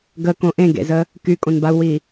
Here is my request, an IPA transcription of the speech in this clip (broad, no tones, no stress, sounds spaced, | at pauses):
ɡ ə k õ ʔ ẽ ɡ ḛ z ə | k y kʼ õ n b a u̯ w i